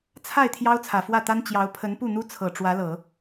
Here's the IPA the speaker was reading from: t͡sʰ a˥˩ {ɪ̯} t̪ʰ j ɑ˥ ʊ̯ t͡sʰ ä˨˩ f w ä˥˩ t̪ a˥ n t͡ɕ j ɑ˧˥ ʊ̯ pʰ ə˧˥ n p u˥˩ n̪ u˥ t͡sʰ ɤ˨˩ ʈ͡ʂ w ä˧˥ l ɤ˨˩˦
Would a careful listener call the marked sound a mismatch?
no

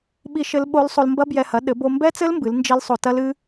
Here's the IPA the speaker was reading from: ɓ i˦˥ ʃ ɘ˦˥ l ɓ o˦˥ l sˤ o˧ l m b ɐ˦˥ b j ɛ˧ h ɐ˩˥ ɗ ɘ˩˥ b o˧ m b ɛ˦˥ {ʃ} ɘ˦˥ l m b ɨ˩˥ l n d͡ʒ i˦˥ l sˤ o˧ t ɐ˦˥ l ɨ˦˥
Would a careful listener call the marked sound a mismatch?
yes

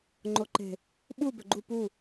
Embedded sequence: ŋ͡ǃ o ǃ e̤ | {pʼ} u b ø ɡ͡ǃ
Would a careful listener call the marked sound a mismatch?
yes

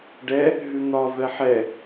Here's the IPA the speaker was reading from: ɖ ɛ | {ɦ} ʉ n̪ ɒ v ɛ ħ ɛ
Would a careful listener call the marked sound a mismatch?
no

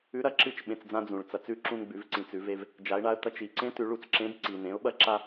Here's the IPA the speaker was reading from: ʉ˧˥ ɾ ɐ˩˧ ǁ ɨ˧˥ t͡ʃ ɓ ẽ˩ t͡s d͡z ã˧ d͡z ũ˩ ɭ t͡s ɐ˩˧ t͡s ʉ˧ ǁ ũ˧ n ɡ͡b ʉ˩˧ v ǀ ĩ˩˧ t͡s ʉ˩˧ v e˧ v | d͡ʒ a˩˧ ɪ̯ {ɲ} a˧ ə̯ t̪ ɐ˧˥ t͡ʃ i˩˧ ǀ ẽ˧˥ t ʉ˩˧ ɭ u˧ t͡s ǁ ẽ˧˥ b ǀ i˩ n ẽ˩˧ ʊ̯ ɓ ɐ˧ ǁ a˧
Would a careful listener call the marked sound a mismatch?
yes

